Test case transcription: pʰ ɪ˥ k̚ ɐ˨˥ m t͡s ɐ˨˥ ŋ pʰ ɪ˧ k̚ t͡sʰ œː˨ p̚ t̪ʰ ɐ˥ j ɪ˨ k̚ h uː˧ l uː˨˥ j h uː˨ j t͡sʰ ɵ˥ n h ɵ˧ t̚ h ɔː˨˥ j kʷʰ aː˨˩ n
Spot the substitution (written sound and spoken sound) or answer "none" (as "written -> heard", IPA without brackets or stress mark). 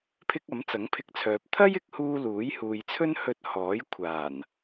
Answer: none